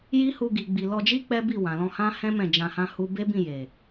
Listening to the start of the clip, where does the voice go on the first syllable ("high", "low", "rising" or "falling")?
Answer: high